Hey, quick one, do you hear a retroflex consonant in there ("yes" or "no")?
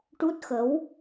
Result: yes